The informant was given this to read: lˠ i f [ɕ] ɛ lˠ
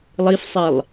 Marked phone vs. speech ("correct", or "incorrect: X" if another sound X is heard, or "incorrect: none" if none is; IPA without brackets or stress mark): incorrect: sˤ